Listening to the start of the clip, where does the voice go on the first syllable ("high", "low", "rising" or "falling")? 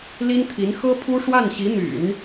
high